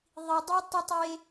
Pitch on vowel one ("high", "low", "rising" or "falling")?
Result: low